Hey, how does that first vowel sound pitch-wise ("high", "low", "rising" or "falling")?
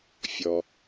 low